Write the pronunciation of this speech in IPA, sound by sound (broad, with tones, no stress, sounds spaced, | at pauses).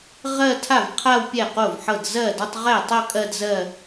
ʁ ɜ˥˧ tʰ a˥˩ v qʰ a˥˧ w pʲ ɛ˥˩ q o˥˩ v ħ ɤ˥˩ d z ɜ˥˩ d ɒ˥˧ tˤ ʁ ɛ˥˩ tˤ ɤ˥˧ kʼ ɜ˥˧ d z ɜ˥˧